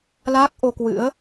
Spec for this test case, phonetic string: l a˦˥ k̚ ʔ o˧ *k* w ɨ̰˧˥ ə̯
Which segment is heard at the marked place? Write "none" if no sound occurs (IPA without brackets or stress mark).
k